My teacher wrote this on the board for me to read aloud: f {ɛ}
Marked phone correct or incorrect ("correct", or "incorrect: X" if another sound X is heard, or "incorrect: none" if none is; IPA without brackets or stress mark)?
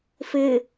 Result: incorrect: ɪ